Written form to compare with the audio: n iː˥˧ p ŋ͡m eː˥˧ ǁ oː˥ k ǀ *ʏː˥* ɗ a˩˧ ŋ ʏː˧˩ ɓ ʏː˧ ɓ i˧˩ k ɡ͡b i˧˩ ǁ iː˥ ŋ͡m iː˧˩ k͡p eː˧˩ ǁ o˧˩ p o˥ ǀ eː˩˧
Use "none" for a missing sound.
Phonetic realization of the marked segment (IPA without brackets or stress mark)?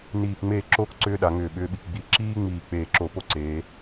ʏː˥